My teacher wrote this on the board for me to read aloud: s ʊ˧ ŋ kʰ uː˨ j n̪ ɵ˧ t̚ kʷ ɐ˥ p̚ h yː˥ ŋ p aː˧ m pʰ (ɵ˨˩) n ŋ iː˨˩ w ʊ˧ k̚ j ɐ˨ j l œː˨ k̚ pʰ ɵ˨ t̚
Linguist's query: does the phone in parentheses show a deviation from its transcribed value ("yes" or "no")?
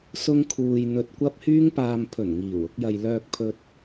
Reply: no